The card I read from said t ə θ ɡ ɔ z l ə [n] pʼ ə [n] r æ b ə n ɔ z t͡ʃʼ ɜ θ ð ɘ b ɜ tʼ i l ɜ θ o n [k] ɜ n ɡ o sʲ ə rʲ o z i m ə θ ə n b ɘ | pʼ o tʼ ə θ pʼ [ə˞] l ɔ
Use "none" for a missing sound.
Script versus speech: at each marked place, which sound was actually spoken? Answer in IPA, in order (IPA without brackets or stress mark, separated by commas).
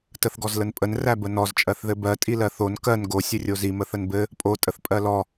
n, n, k, ɜ